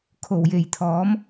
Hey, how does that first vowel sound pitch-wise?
low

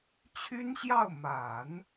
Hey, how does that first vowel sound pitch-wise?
high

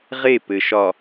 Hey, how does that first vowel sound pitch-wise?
falling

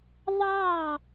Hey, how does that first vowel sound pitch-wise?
falling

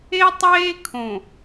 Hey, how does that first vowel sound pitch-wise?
high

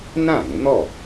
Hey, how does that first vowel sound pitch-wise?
falling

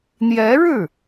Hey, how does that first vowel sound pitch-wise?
rising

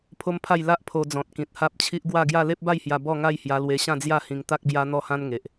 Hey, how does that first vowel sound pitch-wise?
high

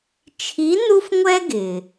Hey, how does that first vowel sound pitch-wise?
rising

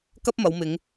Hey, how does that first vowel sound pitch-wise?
high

